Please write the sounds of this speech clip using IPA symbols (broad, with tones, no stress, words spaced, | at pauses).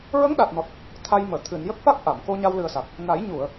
ɹə˧˥ŋɗa˨˩t̚nɔ˨˩t̚ | t̪ʰa˧jməː˨˩˨ t̪ʰɨ˨˩˨n jə˦˥k̚fa˦˥k̚ʔa˨˩˨m ko˧ ɲa˧wlɨ˨˩ə̯ sa˨˩k̚ | na˨˩˦jɲu˨˩˨ə̯